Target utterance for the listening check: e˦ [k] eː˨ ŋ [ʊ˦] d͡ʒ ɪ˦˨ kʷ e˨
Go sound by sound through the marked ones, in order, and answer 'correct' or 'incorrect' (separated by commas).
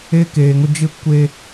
correct, correct